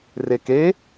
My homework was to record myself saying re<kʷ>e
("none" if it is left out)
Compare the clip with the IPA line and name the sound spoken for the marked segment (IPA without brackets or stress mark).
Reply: k